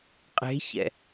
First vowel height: mid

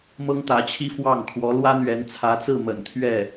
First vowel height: mid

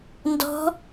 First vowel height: mid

